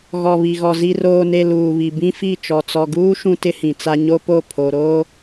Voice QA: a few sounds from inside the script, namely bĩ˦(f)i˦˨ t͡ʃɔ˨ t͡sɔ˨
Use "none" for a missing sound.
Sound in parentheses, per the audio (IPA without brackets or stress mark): f